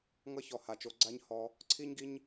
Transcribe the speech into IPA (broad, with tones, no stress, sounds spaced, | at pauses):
ŋ ʌ˦ ç ɔ˨ h a˨ t͡ʃ o˧ ɡ͡ǀ a˦ ɲ h ɔ˧ | ǀʰ i˦ ɲ ɡ i˦ ɲ